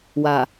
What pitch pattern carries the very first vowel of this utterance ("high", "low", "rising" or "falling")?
low